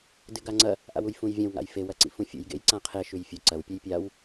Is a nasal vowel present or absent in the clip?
present